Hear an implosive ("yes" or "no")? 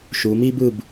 no